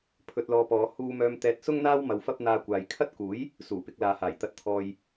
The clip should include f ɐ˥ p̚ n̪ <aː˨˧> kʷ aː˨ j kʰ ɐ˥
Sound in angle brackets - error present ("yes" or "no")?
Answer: yes